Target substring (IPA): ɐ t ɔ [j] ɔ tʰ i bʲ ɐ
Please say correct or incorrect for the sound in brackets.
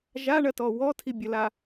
incorrect